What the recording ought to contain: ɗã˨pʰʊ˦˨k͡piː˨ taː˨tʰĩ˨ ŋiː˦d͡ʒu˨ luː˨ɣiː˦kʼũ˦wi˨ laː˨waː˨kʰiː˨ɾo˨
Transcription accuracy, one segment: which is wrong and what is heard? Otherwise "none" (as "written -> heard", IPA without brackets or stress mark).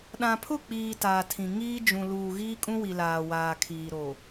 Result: u˨ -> ũ˨